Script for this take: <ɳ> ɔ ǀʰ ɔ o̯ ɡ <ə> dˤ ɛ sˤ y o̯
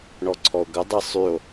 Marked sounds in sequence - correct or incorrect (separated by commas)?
correct, correct